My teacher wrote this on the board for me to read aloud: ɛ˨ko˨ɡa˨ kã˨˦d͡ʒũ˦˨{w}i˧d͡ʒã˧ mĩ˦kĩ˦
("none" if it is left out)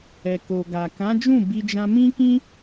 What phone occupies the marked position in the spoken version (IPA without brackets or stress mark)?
b